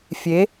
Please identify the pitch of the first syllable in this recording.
rising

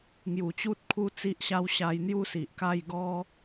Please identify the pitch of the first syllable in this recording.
low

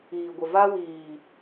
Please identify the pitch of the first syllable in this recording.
low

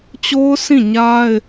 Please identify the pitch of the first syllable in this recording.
high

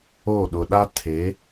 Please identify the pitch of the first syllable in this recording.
falling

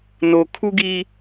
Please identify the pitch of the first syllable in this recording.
low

